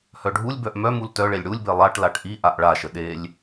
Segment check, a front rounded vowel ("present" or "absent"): present